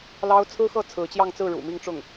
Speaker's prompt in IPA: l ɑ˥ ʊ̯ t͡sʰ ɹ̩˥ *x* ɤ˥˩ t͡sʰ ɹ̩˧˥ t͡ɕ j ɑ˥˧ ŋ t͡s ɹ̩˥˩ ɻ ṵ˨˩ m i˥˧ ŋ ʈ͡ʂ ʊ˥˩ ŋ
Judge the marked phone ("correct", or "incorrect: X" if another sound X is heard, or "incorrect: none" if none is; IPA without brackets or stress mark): correct